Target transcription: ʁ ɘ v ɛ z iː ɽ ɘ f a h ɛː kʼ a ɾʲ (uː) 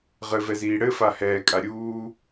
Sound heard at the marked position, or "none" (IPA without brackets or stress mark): uː